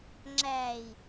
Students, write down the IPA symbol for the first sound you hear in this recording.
ŋ͡ǁ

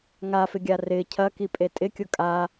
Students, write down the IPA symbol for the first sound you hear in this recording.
ŋ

